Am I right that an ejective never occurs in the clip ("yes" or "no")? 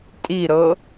no